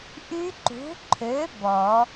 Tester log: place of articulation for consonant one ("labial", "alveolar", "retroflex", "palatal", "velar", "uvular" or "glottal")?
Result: glottal